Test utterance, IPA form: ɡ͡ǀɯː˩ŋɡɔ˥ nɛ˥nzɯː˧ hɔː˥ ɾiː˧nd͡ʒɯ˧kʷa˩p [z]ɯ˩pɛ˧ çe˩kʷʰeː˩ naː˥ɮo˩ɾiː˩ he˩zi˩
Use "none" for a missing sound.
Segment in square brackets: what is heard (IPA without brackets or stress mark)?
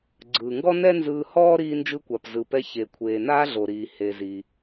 z